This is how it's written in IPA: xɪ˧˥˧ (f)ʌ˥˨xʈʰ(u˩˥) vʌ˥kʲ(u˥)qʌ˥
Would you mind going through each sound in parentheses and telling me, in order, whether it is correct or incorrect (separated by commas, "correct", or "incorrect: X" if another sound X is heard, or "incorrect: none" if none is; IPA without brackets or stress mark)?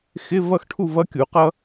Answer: incorrect: v, incorrect: u˥˨, incorrect: u˩˥